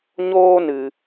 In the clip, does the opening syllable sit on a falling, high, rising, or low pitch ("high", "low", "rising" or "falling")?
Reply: high